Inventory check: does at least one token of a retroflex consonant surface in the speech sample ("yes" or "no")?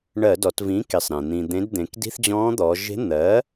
yes